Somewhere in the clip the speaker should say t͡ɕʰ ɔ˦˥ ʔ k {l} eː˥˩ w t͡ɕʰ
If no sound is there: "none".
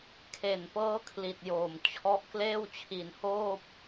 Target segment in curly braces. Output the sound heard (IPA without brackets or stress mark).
l